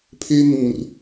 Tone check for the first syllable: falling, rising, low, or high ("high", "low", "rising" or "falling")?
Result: high